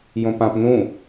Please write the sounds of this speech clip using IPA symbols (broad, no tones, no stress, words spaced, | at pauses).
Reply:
jõpãp nũ